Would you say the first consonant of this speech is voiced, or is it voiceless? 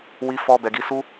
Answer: voiced